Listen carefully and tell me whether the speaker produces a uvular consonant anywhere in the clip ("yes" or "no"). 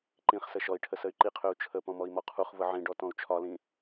yes